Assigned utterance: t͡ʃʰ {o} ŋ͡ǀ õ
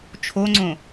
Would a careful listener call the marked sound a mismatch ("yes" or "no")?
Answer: no